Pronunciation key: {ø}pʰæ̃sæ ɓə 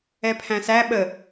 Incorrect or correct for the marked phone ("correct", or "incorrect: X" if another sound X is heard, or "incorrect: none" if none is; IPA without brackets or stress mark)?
incorrect: ɛ